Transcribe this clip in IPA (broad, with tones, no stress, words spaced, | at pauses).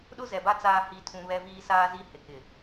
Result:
ɗʊ˦zɛ˨ba˦ t͡saː˦hi˦˨tʰũ˦ βɛ˦viː˦ saː˦zi˦ hɪ˨kɪ˨